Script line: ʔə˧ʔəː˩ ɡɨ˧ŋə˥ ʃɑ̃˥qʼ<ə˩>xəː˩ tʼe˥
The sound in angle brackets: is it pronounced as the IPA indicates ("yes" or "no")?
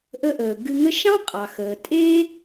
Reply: no